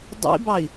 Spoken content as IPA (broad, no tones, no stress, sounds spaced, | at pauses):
dˤ ḭ b ɑ i̯